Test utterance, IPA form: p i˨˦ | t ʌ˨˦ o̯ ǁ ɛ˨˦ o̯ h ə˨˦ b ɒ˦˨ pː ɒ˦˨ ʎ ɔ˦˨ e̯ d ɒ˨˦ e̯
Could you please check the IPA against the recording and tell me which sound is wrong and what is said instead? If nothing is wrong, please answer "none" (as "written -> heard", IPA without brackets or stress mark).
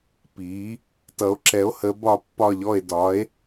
none